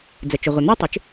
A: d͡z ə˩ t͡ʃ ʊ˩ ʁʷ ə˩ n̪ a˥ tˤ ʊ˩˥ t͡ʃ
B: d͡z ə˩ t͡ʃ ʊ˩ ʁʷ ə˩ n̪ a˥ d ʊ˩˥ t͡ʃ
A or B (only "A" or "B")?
A